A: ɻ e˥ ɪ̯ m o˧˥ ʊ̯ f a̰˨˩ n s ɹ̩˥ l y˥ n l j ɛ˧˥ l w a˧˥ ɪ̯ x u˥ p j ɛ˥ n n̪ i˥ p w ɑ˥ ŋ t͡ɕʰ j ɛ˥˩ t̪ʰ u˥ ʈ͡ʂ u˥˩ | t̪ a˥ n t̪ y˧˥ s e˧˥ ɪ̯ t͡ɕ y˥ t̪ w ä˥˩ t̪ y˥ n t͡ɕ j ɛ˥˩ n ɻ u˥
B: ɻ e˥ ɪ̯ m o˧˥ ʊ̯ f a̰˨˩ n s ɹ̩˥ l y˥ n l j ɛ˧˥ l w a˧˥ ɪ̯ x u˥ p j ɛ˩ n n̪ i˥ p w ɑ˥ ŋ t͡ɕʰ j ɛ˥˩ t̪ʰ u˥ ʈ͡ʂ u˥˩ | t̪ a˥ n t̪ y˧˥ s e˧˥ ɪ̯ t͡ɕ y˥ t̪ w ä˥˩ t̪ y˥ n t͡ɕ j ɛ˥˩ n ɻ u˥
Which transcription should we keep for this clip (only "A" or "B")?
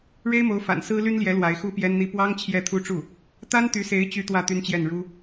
A